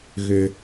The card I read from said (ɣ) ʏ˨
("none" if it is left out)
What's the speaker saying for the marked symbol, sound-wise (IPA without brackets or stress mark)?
ɣ